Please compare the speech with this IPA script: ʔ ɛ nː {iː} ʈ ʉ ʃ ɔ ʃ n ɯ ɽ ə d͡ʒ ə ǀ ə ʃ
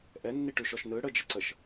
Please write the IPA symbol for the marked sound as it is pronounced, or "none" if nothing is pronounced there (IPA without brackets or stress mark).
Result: i